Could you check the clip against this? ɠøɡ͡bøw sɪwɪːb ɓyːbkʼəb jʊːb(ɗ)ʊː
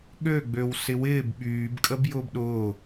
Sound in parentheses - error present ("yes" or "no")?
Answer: no